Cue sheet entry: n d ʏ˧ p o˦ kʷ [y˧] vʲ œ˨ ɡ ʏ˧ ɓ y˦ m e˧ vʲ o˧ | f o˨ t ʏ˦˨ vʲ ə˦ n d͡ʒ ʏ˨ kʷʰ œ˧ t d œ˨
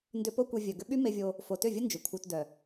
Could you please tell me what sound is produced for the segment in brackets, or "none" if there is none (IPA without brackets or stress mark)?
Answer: e˧